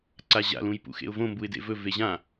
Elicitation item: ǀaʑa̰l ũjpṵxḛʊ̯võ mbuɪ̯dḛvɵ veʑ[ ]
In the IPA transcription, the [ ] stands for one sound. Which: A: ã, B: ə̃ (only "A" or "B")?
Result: A